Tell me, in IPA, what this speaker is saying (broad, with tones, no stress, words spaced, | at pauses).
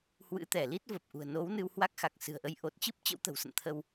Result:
hwɨ̰˧˥ t̪ɛ˧˩li˦˥t̚və˨˩p̚ʔṳ˨˩ə̯ no˨˦w nɨ˧whwa˦˥k̚xa˨˩k̚ sɨ̤˨˩ə̯ʔə˨˦j ʔo˨˩t̚t͡ɕɨ˦˥p̚ t͡ɕə̰˧˥wt̪ə̤˨˩wsə̰˧˨n t̪ʰə˧w